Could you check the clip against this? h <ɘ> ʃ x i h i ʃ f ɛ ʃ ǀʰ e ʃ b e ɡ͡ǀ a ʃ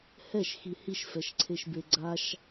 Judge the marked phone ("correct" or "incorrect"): incorrect